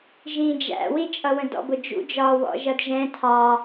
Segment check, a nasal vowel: present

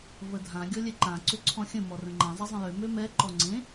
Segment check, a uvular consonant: absent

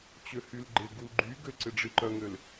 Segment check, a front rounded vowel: present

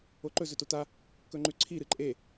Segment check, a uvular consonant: absent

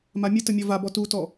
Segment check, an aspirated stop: absent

